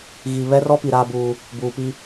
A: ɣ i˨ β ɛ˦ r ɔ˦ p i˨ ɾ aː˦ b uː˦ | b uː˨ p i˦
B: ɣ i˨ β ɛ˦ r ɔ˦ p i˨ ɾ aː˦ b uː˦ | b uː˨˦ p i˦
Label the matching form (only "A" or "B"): A